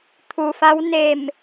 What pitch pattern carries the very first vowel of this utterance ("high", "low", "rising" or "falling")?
low